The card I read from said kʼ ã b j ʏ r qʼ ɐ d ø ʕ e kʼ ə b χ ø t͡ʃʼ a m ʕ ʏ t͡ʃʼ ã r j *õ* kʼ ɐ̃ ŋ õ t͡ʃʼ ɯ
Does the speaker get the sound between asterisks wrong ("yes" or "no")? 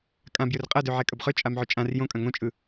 no